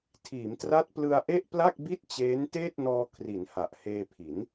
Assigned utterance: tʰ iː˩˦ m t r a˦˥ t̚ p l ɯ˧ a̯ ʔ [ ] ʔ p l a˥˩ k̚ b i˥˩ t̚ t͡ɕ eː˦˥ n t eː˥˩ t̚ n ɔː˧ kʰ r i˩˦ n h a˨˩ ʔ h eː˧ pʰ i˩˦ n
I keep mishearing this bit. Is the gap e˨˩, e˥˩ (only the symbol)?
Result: e˥˩